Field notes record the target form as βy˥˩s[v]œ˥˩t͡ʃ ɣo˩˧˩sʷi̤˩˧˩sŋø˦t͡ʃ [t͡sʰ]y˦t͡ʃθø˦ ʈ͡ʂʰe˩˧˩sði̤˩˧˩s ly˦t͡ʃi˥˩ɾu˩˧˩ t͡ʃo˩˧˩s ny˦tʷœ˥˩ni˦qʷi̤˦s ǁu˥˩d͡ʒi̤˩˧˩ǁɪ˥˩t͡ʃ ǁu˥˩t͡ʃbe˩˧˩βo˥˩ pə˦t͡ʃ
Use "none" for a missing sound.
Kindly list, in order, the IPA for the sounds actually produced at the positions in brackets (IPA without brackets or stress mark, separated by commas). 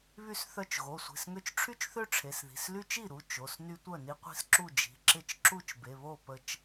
θ, ʈ͡ʂʰ